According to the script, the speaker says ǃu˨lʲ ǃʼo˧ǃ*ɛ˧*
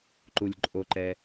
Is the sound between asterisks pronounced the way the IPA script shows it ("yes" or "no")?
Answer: yes